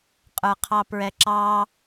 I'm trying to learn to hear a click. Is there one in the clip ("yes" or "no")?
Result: yes